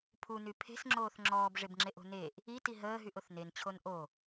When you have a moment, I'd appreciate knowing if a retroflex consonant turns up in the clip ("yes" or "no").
yes